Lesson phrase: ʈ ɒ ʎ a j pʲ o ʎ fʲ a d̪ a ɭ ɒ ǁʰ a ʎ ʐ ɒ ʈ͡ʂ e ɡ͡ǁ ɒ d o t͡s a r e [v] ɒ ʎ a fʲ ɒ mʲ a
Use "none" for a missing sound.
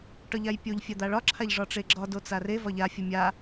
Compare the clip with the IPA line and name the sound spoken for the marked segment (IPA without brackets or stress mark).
v